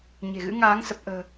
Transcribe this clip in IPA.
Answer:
ɲ e̤˨˩ ɣ ɨ̰˧˥ ŋ aː˨˦ ŋ s ə˨˩ p̚ ʔ ə̤ː˨˩

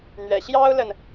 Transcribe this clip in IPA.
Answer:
n̪ ɥ ɛ̰˨˩ ɕ j ɑ˥ ʊ̯ l ə˨ n

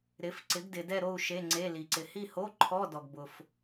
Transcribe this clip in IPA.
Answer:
ɾ ɪ˨˥ f ǀ ɪ˨˥ ɡ d ɪ˨ d ɛ˥˧ ɾ o˥˧ u̯ ʃ e˧˥˧ ŋ͡ǀ e˧˥˧ l i˨ ǀ ɪ˨ h i˥˧ h o˧˥˧ ǃʰ ɔ˧˥˧ d ɔ˨ ɡ b ʊ˨ f

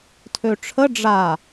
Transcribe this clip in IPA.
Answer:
tʰ ø ʈ͡ʂʰ ə ɖ͡ʐ a

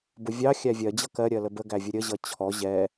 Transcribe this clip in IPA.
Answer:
b ʊ vʲ ɑ xʲ æ vʲ ɜ d͡ʑ ʌ k ɜ ɾʲ ɜ l ə b ə ɡ æ vʲ ə ɾʲ ə ʑ ʌ t͡ɕʰ ɔ ʑ ɛ

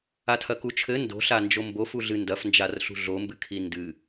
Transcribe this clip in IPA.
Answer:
a tʰ ɐ k u t͡ʃʰ ɘ n d o̤ ɬ a n d͡ʒ o m b o f u ɮ ɨ n d ɐ f n d͡ʒ a r ɬ ṳ ɮ o m b ɨ kʰ i n d ɨ

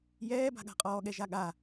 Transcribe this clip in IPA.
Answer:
j ɛː b a̤ ɠ a̤ qʼ ɔː ɠ ɛ ʒ a ɠ a

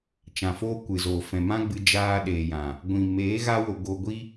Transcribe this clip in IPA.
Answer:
t͡ʃ ã˧ f oː˦ kʷ ɨ˨ z oː˨ f ɛ̃˨ m ã˦ ɡ͡b ɨ˧ d͡ʒ aː˧ ɗ eː˨ j ã˨ | ɡʷ ĩ˨ m eː˨˦ ɣ a˧ w o˨ ɡ o˧ ɡʷ i˦

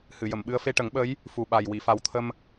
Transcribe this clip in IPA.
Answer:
h ɨ˨˩˨ j ə˨˩˨ m ɓ ɨ˧ ə̯ f e˧ ʈ ə˨˩˦ ŋ ɓ ə˧˥ j | f u˨˩ ɓ a˨˩ j w i˨˩˨ f a˨˩ w t̪ʰ ə˧ m

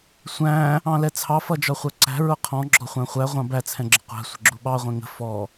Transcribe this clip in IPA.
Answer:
sʷ æ̃ | ɑ̃ l ɛ t͡sʰ ɑ f ʌ d͡ʒ ɒ χʷ ɜ ǀ æ̤ ɹ ʊ qʰ ɔ̃ ɡ͡ǁ ɔ χʷ æ̃ χʷ æ ʁʷ ɑ̃ b æ t͡sʰ ɛ̃ ɡ͡ǁ ɪ qʷ æ̤ sʷ ə̤ ɡ͡ǁ u ɓ ɑ ʁʷ ɛ̃ ŋ ə̤ f ɔ

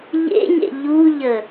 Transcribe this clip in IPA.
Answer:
ʎ ḛ ɲ ḛ ʎ u ʎ ə

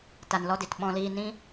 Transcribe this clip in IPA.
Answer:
t a˧ n l ɔ˦ d i˨ t ɓ ɔ̃˧ l iː˧ n ĩ˦

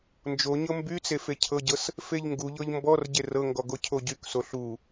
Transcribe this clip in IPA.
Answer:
n d͡ʒ o ɲ ɤ m b y t͡s e f e cʰ ɤ ɟ ɤ s | f e ʎ ŋ ɡ u ʎ ɤ ʎ m b ɔ r ɟ e r ɤ ŋ ɡ ɔ ɡ o cʰ o ɟ y k s o ɬ u

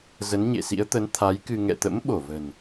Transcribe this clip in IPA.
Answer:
z ə˨˦ n ɲ ḛ˧˨ s ḭ˧˥ ə̯ t̪ ə˨˦ n t̪ʰ a˨˦ j k ɨ˧ ŋ ɛ̰˧˨ t̪ ə̰˧˥ m ɓ o˧˩ v ə̤˨˩ n

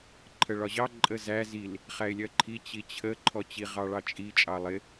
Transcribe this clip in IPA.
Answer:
ǃʰ ə ɭ ɒ ʑ ɑ ǃʼ ə z æ z i l | χ æ ɪ̯ lʲ ɜ ǃʰ i t͡ɕ i t͡ɕʰ ə ǃʰ ɔ t͡ɕ i ʁ ɑ ɭ ɑ t͡ʃʼ i t͡ʃʼ ɑ lˠ ɪ

